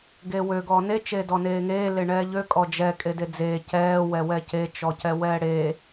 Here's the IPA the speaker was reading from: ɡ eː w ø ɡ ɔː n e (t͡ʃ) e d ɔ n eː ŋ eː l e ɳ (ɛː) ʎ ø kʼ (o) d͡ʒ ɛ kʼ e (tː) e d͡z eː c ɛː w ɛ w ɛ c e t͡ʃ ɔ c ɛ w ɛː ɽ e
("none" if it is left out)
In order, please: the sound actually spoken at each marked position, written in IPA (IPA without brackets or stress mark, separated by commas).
t͡ʃ, ɛː, ɔ, d